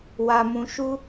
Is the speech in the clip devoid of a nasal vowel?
no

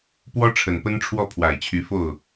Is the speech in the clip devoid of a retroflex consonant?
no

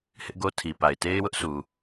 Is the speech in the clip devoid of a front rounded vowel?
yes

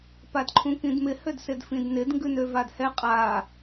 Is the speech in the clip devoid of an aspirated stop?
no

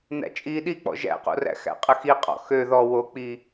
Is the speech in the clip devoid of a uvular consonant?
no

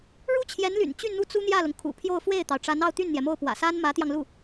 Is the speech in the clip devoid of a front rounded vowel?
no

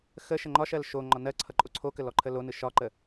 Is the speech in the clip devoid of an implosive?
yes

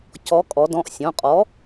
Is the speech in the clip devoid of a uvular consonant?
no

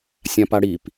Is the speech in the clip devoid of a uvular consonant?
yes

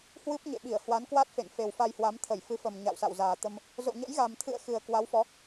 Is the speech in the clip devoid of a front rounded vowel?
yes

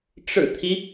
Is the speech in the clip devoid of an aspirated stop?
no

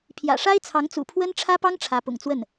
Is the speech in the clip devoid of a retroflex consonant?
no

